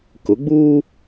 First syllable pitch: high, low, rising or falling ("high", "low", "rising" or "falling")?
rising